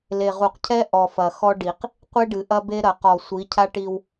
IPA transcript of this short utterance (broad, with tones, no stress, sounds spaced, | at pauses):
l e˨ ʁ u˨ q cʰ ɛ˦ ʔ ɔ˨ f ɐ˨ x ɔ˦ ɖ i˨ q | qʷ e˦ ɖ ɨ˨ ʔ ɐ˦ b e˦ ɾ ɐ˨ q ɔ˨ sʷ i˨˦ cʰ a˦ ʈ i˦ w